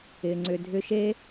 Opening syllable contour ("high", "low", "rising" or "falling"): low